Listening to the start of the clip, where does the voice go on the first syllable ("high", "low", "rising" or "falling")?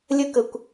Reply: high